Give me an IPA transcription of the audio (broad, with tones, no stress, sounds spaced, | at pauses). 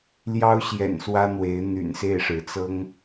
l j ɑ˥ ʊ̯ ɕ j ɛ̰˨˩ n s w ä˥ n̪ w e˧˥ ɪ̯ n̪ y̰˨˩ n s e˥˩ ɪ̯ ʂ ɻ̩˧˥ t͡s ɤ˥ ŋ